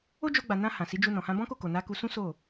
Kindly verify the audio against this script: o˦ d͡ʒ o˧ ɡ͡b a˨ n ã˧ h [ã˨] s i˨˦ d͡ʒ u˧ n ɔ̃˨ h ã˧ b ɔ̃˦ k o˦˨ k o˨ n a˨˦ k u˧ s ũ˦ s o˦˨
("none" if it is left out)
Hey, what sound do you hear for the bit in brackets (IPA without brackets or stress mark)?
ã˨